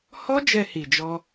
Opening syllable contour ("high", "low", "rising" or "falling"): high